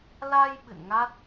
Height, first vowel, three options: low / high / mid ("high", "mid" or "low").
low